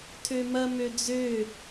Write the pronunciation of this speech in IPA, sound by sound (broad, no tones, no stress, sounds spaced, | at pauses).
tʰ ø m ɐ m ø d͡z ø